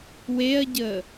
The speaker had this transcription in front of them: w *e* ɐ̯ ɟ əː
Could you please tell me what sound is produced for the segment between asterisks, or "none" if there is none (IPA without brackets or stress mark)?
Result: e